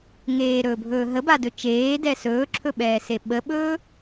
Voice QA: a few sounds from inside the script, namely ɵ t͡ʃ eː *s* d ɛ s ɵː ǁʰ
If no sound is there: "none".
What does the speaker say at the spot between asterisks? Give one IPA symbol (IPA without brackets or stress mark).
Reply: none